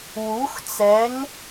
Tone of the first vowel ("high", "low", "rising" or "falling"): rising